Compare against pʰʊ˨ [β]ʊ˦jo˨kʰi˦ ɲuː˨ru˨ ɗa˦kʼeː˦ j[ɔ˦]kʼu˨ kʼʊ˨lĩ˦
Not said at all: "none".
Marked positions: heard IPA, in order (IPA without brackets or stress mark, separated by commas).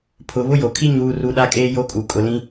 β, o˦